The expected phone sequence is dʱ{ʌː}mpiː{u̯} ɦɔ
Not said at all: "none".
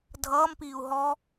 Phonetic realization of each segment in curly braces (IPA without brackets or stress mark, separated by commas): ʌː, u̯